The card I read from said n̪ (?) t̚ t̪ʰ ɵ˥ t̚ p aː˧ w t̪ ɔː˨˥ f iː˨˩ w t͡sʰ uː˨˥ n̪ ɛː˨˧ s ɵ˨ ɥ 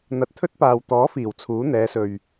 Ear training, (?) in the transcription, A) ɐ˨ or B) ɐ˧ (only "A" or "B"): B